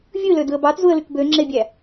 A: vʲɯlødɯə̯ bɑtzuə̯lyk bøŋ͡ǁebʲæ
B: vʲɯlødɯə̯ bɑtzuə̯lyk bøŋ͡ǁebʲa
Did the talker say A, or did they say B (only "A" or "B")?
A